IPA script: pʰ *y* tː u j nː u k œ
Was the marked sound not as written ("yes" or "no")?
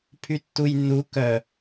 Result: no